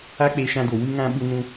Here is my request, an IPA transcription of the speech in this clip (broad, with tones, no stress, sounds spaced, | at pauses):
a˦ k͡p e˧ ʃ ã˧ d o˨ w ɨ˧ ŋ ã˧ ɓ u˧ n ũ˧